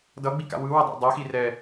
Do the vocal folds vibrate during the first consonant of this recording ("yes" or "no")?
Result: yes